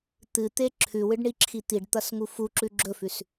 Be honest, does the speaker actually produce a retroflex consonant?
yes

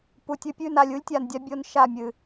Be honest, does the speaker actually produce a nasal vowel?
no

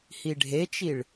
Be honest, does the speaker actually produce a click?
no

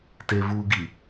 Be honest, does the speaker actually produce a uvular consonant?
no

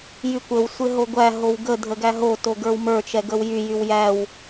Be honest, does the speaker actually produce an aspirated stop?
no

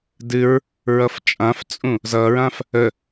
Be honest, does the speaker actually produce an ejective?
yes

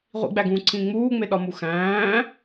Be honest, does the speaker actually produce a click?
yes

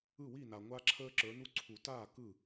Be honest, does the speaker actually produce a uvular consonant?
no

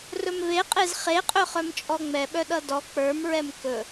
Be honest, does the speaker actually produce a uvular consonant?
yes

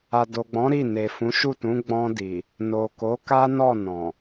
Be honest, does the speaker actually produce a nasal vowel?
yes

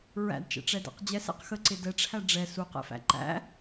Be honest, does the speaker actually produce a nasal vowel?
no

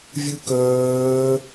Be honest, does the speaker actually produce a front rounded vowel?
yes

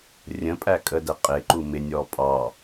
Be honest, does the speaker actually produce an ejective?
yes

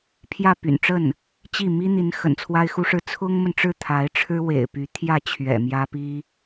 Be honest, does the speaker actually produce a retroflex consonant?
yes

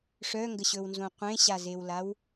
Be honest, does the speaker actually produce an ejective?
no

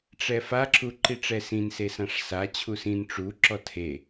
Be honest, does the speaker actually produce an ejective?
no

